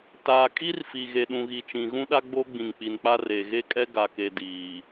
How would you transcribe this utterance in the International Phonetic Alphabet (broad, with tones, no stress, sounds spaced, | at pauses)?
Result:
t aː˨ kʼ i˦ r f i˨ ɣ e˨ ɗ ũ˨ ɣ i˨ t͡ʃ ĩ˨ ɣ ũ˦ ɗ a˦ ɡ͡b o˦ ɡ͡b ĩ˨ ŋ k͡p i˨ n k͡p a˦ r e˨ ɣ e˦ kʼ ɛ˦ ɡ a˨ k e˨ d iː˨